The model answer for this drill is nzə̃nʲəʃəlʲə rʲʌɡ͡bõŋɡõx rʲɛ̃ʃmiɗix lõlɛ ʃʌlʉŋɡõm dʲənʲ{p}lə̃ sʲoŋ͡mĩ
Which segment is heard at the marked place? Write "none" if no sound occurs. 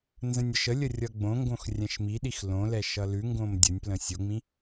p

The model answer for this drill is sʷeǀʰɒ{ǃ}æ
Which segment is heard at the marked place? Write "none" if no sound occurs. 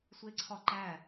ǃ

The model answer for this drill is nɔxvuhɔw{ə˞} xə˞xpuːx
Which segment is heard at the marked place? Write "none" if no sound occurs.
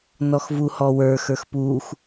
ə˞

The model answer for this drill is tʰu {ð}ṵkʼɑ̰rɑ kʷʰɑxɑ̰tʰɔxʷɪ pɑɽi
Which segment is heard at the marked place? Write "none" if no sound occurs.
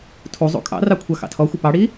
zˤ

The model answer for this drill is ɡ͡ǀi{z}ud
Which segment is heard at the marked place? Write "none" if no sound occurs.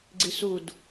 s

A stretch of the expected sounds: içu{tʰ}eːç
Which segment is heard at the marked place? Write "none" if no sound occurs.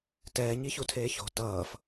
tʰ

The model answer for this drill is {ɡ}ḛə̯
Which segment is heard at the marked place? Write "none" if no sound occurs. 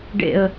ɖ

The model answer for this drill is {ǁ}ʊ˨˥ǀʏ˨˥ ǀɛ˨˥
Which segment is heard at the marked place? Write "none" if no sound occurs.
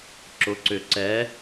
ǁ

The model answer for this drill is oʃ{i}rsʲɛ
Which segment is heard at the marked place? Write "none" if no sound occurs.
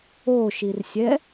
i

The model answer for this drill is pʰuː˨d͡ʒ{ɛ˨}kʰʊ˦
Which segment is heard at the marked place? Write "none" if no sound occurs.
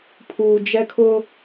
ɛ˦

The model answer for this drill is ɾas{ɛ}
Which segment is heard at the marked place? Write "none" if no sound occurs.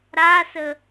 ə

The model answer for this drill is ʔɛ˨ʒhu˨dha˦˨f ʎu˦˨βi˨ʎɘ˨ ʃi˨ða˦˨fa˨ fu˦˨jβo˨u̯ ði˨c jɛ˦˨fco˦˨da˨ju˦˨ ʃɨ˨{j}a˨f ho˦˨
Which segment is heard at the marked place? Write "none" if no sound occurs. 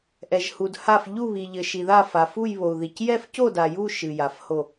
j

